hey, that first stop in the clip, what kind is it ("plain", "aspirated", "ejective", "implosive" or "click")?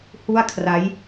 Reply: aspirated